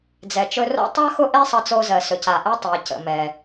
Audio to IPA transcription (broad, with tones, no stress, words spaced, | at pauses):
d͡zɛ˩t͡ʃɵ˧ro̰˥ tˤa˥ xʊ˥ʔe˥sˤʌ˧t͡so˧ zɜ˩sɵ˩ ca˩ʔɛ˧ tˤɜ˩cə̰˩mɛ˩